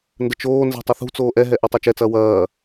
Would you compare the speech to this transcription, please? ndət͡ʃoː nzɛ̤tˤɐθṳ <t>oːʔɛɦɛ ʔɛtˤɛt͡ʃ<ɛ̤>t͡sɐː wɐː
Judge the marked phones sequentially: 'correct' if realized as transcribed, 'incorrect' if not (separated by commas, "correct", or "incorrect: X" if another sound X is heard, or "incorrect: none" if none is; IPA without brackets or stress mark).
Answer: incorrect: t͡s, incorrect: ɛ